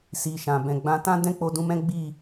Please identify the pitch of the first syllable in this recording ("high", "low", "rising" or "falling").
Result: low